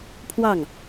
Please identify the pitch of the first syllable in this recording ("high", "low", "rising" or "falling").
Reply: falling